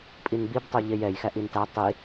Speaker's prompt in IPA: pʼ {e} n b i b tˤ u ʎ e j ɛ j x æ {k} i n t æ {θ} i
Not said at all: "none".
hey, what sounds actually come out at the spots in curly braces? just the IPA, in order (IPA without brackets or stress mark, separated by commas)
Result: i, ʔ, tˤ